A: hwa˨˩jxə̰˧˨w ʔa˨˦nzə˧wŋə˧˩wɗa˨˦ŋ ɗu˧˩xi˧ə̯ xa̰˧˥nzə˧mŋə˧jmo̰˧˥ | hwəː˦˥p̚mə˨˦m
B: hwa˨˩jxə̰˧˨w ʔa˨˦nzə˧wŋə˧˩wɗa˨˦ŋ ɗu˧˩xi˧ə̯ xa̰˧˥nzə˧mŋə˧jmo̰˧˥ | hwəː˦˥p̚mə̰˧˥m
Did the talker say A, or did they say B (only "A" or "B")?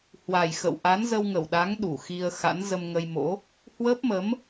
A